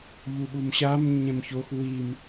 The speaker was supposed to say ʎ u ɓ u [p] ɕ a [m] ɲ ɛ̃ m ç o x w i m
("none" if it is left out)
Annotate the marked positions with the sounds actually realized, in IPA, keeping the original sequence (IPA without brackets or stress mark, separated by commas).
m, m